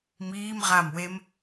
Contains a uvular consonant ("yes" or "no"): yes